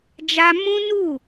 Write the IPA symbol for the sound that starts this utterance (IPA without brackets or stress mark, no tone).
d͡ʒ